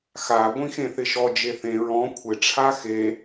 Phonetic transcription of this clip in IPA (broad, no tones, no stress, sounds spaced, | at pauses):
x a ɡʷ ĩ x ẽ θ ɪ ʃ ɔ d͡ʒ e θ ẽ ɹ ɔ̃ kʷʰ ɪ ʈ͡ʂʰ a x e